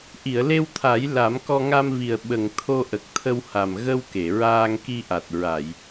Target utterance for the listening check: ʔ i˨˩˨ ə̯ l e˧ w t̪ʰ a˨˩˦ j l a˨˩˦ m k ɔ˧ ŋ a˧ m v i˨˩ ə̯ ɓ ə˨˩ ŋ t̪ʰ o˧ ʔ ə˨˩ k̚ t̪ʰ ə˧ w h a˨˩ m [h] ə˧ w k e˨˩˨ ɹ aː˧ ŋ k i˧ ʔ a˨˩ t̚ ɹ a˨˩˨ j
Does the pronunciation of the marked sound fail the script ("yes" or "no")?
yes